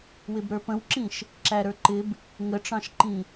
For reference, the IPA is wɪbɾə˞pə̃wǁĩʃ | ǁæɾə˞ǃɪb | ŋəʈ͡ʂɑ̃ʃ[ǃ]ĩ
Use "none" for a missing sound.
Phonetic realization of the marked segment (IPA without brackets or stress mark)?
ǃ